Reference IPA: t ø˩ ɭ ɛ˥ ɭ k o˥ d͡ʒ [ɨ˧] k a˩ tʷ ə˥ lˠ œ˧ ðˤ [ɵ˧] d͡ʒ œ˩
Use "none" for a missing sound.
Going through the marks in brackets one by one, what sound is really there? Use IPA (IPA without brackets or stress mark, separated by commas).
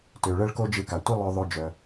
ɨ˧, ɵ˧